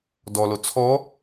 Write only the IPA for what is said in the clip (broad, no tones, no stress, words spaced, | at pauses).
dɔlo t͡sʰɔ